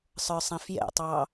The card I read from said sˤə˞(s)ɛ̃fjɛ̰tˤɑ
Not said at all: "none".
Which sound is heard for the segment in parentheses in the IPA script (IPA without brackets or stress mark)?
sˤ